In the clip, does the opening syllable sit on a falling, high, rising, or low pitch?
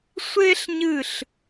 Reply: high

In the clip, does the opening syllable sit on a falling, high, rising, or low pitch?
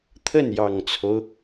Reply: falling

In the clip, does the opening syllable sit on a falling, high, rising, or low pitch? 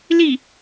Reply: falling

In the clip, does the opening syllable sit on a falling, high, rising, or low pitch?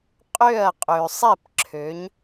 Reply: falling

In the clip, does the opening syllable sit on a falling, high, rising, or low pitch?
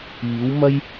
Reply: rising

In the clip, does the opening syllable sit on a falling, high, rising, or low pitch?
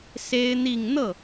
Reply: high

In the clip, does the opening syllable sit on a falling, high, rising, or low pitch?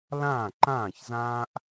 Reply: falling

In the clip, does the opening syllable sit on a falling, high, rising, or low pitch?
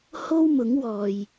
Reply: high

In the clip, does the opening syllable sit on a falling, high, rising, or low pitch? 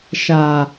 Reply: low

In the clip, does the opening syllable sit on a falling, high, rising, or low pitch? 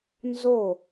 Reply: falling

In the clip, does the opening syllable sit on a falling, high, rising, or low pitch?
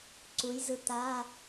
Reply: rising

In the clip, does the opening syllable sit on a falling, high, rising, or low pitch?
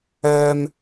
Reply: high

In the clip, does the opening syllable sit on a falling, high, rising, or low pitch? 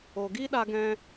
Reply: low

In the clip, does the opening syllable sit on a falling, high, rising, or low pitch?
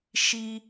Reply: high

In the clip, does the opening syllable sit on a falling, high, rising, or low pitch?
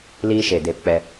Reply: high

